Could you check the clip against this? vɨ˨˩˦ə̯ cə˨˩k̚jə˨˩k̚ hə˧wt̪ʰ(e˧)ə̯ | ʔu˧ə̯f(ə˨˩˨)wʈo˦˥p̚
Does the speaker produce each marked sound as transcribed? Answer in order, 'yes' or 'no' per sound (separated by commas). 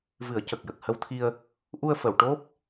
no, yes